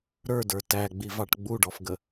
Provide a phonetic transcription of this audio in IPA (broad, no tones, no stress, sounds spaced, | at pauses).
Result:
ɾ ə˞ d ə˞ t æ ɡ͡b i v ɑ ʈ ɡ͡b u ɖ ɔ f ɡ ə